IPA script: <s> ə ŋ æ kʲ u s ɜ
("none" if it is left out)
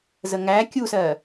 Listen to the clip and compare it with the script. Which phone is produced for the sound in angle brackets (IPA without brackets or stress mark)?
z